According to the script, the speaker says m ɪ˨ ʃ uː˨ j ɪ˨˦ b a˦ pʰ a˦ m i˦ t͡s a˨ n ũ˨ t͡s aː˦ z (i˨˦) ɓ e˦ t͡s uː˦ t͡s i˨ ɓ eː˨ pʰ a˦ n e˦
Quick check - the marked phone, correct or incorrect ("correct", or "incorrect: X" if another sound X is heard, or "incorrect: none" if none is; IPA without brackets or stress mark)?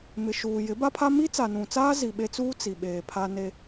incorrect: i˨